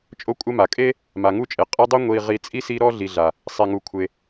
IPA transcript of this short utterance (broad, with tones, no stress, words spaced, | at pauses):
t͡ʃʼo˦kʷʼɛ˦ma˩kʼe˥ | ma˩ŋu˥t͡ʃʼe˩ qʼi˦dˤo˥ ŋʷi˨ʁi˨ t͡sʼi˥si˦ ɾɔ˥ɮi˨ɮa˩ | sˤe˩ŋu˩ kʷʰe˩